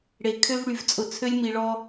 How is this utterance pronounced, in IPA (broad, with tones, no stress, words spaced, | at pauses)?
ɽe˨ kʰø˦vɽy˨vt͡sʼʊ˨ t͡sʰø˦lʲmi˨ɭɔ˦